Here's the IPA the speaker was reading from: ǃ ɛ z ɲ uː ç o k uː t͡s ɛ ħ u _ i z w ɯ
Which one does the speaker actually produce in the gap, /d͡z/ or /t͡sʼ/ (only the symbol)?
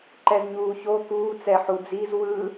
d͡z